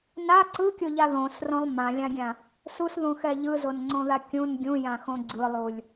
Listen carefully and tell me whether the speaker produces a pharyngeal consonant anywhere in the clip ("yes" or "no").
no